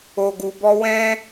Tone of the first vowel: low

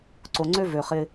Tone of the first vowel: low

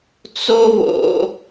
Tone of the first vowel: high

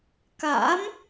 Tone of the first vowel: rising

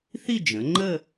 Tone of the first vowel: falling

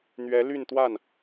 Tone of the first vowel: rising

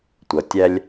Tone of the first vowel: low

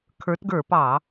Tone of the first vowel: rising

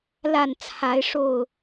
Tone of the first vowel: falling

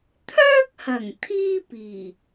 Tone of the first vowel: high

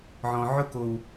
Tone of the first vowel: low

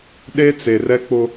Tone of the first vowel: high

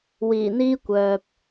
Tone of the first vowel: low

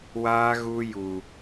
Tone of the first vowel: high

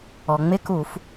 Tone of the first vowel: low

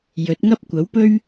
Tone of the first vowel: rising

